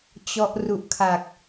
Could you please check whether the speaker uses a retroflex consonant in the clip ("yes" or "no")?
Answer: no